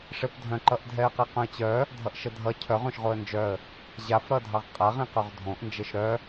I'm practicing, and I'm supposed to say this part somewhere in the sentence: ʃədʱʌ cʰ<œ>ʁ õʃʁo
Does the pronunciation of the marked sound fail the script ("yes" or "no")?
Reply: no